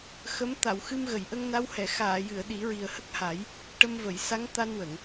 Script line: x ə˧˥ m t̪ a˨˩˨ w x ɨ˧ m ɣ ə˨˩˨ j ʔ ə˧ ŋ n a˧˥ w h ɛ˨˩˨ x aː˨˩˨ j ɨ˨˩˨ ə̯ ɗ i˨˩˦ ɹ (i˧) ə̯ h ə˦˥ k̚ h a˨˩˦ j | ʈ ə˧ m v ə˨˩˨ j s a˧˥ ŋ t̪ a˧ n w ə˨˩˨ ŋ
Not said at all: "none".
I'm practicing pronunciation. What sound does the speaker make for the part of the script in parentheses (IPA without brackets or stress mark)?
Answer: i˨˩